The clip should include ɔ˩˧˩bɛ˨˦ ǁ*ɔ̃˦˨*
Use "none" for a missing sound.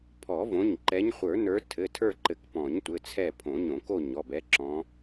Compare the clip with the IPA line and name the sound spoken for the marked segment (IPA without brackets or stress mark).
ɔ̃˨˦